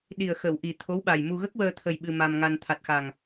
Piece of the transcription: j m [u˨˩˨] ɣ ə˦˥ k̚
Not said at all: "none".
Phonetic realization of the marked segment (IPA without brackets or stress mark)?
u˧